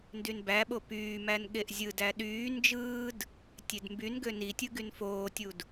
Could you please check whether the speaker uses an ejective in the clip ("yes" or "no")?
no